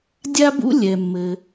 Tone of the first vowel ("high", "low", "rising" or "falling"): high